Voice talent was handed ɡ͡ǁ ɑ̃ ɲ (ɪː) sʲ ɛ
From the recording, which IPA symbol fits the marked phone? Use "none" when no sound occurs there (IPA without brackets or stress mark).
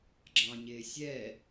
ɪː